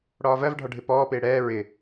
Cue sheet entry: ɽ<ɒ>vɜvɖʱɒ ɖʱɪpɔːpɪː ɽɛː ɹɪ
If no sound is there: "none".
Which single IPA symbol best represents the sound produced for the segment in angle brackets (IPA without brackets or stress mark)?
ɒː